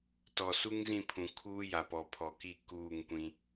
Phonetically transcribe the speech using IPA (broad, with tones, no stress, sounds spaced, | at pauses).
t ɔ˨ s u˦ ŋ z ĩ˦˨ pʰ ũ˨ kʰ uː˦ j a˨ p ɔ˨ pʰ ɔ˨ k i˦˨ k uː˦˨ ŋ kʷ ĩ˦